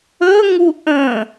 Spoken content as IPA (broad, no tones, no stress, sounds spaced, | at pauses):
ɵ ŋ u ʔ ə̃